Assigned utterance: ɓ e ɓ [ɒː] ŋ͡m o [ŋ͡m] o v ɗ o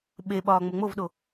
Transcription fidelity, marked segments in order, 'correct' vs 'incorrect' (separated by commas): correct, correct